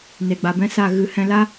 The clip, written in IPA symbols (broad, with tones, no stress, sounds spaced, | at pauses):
n e˨ ɡ͡b a˨ b ɛ̃˦ s a˦˨ ɣ ɨ˨ h ɛ̃˧ l a˦